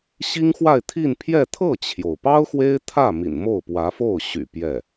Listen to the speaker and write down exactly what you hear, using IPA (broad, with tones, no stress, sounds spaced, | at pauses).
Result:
ɕ i˥ ŋ x w a˥˧ ɪ̯ t̪ʰ i˥˧ n pʰ j ɛ˥˧ t̪ʰ ɤ˥˩ t͡ɕʰ j o˩ ʊ̯ p ɑ˥ ʊ̯ x w e˥ ɪ̯ t̪ʰ ä˥˩ m ḭ˨˩ n m o˥˩ ʊ̯ p w ä˧˥ f o˥˩ ʊ̯ ɕ y̰˨˩ p j ɛ˥˩